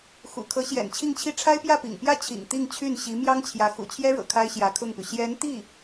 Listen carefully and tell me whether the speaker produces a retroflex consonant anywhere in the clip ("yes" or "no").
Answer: yes